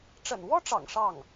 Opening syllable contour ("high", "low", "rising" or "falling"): low